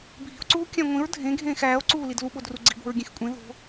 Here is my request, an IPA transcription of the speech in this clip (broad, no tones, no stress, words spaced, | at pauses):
bʱi̤o̯ǀuː kʲæ̃ŋʷĩɹ dʱẽɡʱẽːx æːo̯ǀuːlid luɓodru ɡ͡ǀi̤bo̤ɹɡʲẽxkʷʼẽ ðo̤